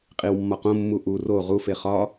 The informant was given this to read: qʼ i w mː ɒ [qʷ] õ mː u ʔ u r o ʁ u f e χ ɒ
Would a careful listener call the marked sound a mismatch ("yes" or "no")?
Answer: yes